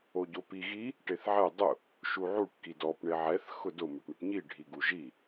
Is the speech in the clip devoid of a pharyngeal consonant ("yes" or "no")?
no